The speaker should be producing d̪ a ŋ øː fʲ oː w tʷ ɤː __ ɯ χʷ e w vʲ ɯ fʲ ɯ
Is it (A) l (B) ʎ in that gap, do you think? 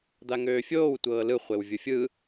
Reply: A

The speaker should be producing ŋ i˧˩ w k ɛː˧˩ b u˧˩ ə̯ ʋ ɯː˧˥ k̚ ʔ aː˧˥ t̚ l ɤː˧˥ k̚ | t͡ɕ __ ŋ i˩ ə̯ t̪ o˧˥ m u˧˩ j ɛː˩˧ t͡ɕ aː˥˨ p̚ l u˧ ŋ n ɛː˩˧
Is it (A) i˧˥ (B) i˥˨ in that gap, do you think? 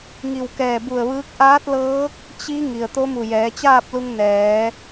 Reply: A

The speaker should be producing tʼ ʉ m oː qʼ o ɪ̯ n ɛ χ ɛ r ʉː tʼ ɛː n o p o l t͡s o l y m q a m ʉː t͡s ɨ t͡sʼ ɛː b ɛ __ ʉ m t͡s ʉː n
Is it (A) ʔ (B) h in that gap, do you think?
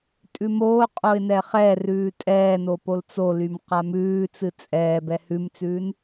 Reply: B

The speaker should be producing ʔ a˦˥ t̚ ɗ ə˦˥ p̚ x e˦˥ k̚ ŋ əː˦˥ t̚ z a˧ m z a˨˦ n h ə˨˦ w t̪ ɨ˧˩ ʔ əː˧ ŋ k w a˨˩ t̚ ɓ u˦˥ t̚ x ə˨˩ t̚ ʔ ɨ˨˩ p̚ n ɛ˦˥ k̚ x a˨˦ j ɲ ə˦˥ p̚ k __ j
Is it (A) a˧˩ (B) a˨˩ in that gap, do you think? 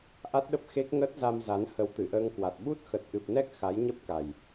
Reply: B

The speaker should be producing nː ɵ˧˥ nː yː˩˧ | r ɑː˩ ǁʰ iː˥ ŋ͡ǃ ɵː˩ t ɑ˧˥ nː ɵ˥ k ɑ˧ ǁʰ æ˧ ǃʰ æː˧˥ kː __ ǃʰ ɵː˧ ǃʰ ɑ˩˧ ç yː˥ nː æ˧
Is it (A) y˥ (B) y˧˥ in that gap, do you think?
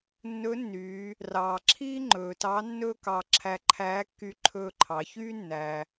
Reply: B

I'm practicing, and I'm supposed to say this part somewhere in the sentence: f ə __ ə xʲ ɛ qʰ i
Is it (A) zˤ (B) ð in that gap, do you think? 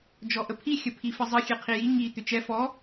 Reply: A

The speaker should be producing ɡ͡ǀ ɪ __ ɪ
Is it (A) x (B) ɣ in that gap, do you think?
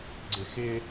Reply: A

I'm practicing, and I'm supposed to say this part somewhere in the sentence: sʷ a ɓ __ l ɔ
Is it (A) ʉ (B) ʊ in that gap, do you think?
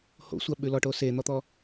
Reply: A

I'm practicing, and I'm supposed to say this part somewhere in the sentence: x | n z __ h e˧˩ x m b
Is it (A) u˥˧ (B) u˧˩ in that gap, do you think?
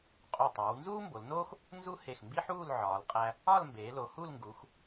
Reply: A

